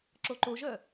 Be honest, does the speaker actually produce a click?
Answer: yes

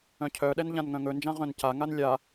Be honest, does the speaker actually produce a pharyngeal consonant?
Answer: no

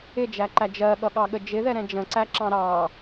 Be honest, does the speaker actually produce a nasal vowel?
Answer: yes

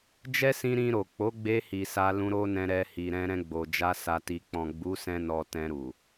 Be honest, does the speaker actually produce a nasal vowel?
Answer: yes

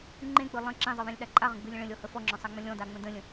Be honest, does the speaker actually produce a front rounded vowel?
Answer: no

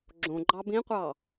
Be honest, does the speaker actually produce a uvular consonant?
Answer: yes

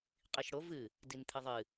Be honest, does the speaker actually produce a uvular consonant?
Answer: yes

